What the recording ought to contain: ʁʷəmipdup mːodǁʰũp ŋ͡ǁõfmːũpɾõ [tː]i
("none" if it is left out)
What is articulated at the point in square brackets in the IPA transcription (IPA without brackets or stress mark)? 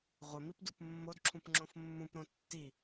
tː